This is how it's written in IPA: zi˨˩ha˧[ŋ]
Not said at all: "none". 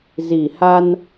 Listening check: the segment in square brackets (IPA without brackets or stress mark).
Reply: n